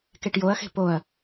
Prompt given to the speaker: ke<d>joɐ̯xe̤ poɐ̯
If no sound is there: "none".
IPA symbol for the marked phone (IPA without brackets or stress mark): ʈ